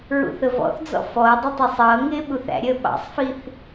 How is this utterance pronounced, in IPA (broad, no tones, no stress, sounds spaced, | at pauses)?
ɹ ṵ θ ə v ɔ̰ θ d͡z ɔ̰ f ɔ e̯ dˤ ʊ tˤ ɛ sˤ ʌː ŋ ɪː ɓ u θ æ̰ ɾʲ əː ɓ ɑ̰ sˤ f i θ